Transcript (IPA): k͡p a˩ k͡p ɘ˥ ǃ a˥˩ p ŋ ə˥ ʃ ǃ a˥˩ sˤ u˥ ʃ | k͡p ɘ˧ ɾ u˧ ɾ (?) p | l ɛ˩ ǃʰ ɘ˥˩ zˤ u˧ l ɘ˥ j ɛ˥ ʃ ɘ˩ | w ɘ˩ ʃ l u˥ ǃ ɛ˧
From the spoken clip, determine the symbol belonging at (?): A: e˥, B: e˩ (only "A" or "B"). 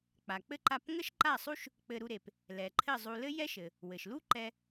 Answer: B